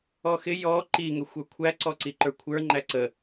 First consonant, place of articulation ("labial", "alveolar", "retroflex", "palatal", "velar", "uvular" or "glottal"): velar